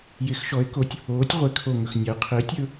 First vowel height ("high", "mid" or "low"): high